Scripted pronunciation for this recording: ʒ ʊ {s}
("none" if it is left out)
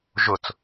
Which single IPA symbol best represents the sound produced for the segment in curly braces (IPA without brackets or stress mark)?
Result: t͡s